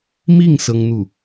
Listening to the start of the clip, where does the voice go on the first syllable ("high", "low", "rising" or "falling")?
falling